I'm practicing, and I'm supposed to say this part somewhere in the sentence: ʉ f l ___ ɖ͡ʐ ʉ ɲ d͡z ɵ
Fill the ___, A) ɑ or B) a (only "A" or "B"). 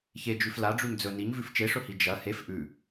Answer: B